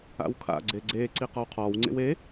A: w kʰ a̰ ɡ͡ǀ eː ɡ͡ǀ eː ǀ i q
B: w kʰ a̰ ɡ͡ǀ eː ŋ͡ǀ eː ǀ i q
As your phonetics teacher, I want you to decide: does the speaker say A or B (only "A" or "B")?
A